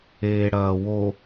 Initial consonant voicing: voiced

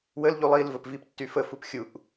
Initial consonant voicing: voiced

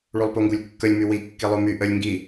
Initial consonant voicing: voiced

